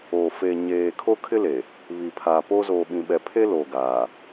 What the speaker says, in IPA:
oː˨ feː˨ɲeː˨kʰo˦ kʰɪ˦le˨ | βi˨pʰaː˨po˦ zoː˨ɓĩ˨ɓɛ˨pʰe˦ lo˨ɡaː˨

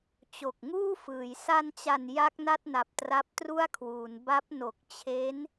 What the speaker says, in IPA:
t͡ɕo˨˩k̚ŋuː˥˩fɯː˩˦j sa˧nt͡ɕa˨˩n ja˦˥k̚na˥˩t̚na˨˩p̚ tra˦˥p̚tru˥˩a̯kʰwuː˩˦n ba˦˥p̚ no˨˩k̚t͡ɕʰe˦˥n

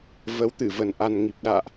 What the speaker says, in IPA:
və˨˦wt̪ɨ˧˩və˨˩n ʔa˨˩nŋi˨˩p̚ ɗa̰ː˧˨ʔ

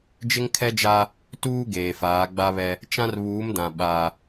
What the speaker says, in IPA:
d͡ʒɪ˦ŋkʰɛ˦d͡ʒa˦ | tuː˦ɡeː˨faː˨˦ ɡ͡ba˦βɛ˦ | t͡ʃã˦r βuː˨˦mdã˨ ɓa˦

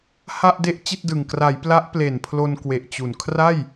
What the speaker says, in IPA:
ha˥˩ʔde˥˩ʔ t͡ɕi˥˩t̚dɯ˨˩ŋ kra˩˦j pla˦˥ʔple˨˩npʰlo˧nkwe˨˩ʔ t͡ɕu˨˩n kʰra˥˩j

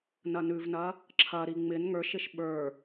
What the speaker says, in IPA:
nɐnʉvnɐ | ǁʰɐɾi ŋ͡mɪn ŋə˞ʃɪʃ ɓə˞

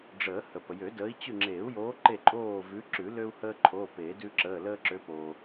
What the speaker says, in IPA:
ɖ͡ʐəː˨˩˦hə˩ pə˩jø˨˩˦dəː˨˦i̯ t͡ɕʉ˥˨ ŋ͡ǁeː˨˩˦u̯joː˨˦ ǃe˥˨ǃʼoː˥˨ vʉ˨˦ǁʉ˨˩˦ lø˦u̯həː˦ǃʰoː˩˧˩ peː˨˩˦ dʉ˦ǁəː˩˧˩ ləː˦ǁø˨˦poː˩

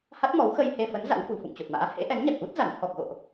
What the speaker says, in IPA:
ha˦˥t̚mɔ˨˦w xə˧jhe˧fə˨˦n za̰˧˥wfṳ˨˩ fṵ˧˨ŋt͡ɕo˨˩t̚ma̰ː˧˥ hḛ˧˥ʔɛ˨˦nɲa˨˩k̚ʔu˦˥t̚ za˧˩n t̪ʰɔ˨˩k̚ɣo̰˧˨ʔ

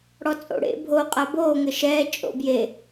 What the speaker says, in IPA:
ɽɔt͡sʼo̰ ɽḛ bʱoqʼa boːŋɘ ʃɛː t͡ʃʼo̰bje

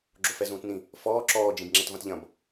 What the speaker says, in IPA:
ɡ͡ǁofɛzũːtnĩ | fɔː ǁɔː d͡ʒĩbŋ͡ǁɛtvɐ̃tʎɐ̃b

